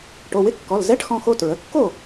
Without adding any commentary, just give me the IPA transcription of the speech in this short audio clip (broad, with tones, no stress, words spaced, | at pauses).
ʈo˩˧˩wɪ˧˥˧kːɔ˩˧˩l zɛ˧˥˧ʈxɔ̃˧ xo˧tɹə˩˧˩kːo˥˨